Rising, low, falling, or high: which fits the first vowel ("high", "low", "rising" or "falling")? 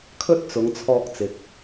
high